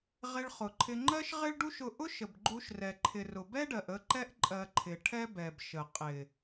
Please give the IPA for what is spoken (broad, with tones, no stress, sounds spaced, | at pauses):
ʁ ɪ˧ ɭ χ ʊ˨ ǃʰ ɪ˧ ŋ͡ǃ ɜ˦ ʃ ʁ ɪ˦ ɭ ɖ u˦ ʃ ʊ˧ ʔ ʊ˦ ʃ ə˨ b ɡ͡ǃ u˧ ʃ r ɛ˨ ǃʰ ɪ˨ r ʊ˨ b ɛ˦ ɖ ɜ˨ ʔ ə˧ ǃ ɛ˦ ʔ ǃʼ ɜ˧ ǃʰ ɪ˨ ʈʰ ɛ˦ b ɛ˨ b ʃ ə˨ qʼ ɪ˨